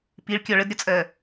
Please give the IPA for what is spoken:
piɭkʲɔ ɭədɾʲɔt͡sʼɜ

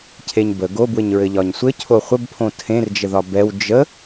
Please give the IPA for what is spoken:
cʰeɲbə ɡobwɘɲɹɘ ʎɒɲsʷɘ cʰoχʷəbpʰõ tʰẽrd͡ʒəðɒ bɛw d͡ʒə

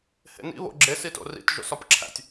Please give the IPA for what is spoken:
hḛnḭ βo̰ɡ͡ǁe sito̰rḭt ʒo̰sɒpǁʰæ̰tʲ

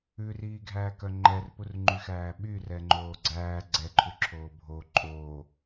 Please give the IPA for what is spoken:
ʉriːɡʱæːkœ ŋ͡ǃɛrpurŋ͡ǃyxæː ɓyrɛŋ͡ǃoː ɡ͡ǀæː ɡ͡ǀɛǃʰʉǁʰoː bʱo ǃʼoː

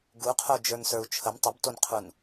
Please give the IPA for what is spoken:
ɡuqʰo d͡ʒə˞nsə˞u̯t͡ʃʰəm tˤəbtonqʰun

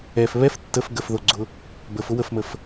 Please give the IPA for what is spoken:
ɛf βɛf tːəf ɡəfðoɡ͡ǀʊ | bəfʊ wəfməf

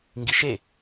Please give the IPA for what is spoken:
ŋɡiʃe

